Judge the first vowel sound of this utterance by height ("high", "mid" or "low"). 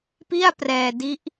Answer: high